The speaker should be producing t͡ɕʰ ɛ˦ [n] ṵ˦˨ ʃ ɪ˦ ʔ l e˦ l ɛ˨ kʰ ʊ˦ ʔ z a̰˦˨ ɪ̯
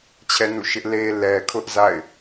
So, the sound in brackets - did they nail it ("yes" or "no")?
yes